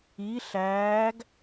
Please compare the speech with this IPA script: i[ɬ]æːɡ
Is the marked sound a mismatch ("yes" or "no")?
no